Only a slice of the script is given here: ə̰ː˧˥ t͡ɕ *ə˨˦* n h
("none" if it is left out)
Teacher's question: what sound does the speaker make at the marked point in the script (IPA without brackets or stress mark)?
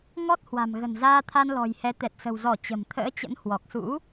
ə̰˧˥